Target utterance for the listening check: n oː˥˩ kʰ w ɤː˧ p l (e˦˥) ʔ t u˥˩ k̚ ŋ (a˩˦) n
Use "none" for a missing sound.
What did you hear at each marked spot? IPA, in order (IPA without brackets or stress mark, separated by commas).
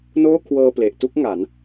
e˨˩, a˩˦